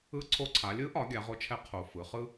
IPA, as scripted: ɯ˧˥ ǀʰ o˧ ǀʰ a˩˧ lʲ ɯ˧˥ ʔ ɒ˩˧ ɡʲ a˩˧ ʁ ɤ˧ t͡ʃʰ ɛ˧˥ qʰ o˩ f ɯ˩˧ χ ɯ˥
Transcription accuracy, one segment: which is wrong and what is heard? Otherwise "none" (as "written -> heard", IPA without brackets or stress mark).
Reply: ɤ˧ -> o˧